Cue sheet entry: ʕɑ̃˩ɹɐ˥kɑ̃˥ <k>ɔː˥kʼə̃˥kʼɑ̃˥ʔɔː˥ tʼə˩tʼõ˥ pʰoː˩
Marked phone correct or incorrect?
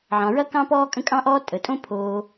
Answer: incorrect